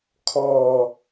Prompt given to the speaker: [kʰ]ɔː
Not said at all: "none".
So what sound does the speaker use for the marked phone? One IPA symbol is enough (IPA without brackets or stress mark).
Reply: kʰ